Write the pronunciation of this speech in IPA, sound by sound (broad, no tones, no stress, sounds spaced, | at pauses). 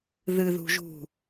ð ɨ ð ṳ ʒ ṳ